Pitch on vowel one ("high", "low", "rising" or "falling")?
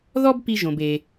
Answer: high